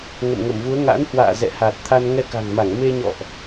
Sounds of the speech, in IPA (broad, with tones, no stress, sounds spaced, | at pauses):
ŋ ə̰˧˨ m ŋ ə˧˩ m v u˨˦ ə̯ ŋ a̰˧˥ n h w a̰ː˧˨ z ɛ̰˧˨ h a˨˩ t̚ t̪ʰ a˧ n ŋ ɛ˧ k a̤˨˩ ŋ m a˧˩ ŋ m e˧ ɲ ɔ̰˧˨ ʔ